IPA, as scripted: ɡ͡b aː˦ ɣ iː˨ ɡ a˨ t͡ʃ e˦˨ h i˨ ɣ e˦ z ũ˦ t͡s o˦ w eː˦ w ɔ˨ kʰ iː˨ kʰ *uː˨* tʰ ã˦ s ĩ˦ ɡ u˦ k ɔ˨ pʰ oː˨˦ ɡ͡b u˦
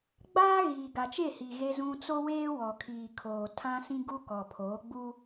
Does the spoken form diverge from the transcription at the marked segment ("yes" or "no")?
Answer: yes